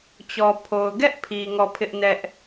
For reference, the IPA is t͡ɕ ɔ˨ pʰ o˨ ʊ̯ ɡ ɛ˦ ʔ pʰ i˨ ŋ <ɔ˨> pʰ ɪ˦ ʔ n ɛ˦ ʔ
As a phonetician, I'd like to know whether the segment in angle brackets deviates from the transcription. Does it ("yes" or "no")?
yes